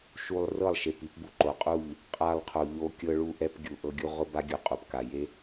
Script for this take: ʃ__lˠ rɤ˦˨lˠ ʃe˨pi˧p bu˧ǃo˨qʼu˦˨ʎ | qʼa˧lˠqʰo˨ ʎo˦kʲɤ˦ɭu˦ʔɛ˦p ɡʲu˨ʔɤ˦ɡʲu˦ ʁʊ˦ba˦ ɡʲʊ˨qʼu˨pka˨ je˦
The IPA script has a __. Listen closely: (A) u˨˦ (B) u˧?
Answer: B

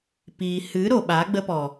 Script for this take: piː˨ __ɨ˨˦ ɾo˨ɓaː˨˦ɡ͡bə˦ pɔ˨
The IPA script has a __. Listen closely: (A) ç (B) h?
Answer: B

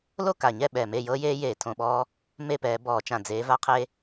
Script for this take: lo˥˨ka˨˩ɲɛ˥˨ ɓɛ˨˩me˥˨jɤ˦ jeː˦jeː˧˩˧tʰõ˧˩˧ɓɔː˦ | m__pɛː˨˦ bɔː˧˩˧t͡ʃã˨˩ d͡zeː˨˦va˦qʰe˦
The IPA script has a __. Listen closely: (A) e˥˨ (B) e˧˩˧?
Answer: A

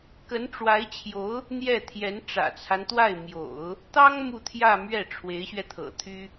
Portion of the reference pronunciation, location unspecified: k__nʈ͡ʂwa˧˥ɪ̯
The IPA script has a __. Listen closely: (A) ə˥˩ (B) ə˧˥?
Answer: B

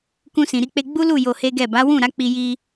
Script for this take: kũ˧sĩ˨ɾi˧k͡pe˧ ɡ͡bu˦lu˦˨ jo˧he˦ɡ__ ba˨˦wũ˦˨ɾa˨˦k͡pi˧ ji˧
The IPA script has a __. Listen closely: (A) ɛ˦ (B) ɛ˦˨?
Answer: B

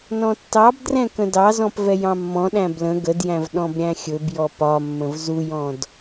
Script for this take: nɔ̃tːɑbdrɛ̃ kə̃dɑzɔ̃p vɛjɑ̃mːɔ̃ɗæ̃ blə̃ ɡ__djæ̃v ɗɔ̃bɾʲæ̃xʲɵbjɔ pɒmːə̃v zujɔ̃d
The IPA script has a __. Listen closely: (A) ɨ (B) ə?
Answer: B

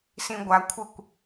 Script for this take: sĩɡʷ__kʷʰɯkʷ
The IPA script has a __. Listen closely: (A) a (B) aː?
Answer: A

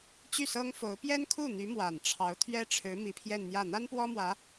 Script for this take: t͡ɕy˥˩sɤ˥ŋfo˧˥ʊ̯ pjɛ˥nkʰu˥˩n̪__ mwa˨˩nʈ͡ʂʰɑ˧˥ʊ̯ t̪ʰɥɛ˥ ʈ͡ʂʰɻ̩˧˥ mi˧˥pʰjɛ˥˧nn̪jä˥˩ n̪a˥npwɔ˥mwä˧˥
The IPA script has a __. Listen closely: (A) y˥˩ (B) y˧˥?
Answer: B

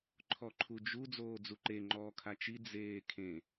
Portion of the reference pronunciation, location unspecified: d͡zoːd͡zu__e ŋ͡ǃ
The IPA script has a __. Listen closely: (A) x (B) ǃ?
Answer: B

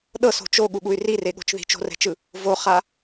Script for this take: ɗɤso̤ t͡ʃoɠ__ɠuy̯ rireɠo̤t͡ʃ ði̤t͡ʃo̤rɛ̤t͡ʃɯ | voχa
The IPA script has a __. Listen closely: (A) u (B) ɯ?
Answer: A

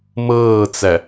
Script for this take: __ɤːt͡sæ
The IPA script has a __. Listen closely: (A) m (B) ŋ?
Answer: A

